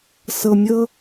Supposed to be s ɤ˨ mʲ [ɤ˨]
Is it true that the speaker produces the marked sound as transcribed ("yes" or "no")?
no